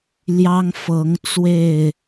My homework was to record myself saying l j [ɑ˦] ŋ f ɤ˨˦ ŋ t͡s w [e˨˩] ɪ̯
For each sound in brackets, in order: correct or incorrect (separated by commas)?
correct, incorrect